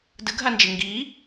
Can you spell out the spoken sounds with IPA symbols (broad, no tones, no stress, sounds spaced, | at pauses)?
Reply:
d ɯ ɡʱ a n d͡ʒ e ŋ ɡ i